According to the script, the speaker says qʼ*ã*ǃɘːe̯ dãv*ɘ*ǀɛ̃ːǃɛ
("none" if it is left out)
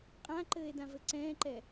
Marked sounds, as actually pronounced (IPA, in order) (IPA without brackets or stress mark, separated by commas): ã, ɘ